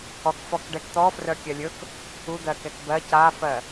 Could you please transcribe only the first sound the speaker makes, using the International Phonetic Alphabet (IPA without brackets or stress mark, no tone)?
ɔ